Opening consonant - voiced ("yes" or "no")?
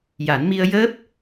yes